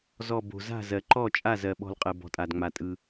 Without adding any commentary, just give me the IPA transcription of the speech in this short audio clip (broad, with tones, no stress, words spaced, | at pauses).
zɔ˧˩bo̤˩ za̤˥˩zɜ˩ǃɔ˥˩t͡ʃʼa˥˩ zɜ˩ɓɔ̤˧˩lqʼɜ˩bɔ̤˩ tʼa˩dŋ͡ma˩tʼɯ˩